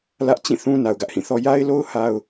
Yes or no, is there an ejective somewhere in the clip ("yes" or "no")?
no